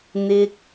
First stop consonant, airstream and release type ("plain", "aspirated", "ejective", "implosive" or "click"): plain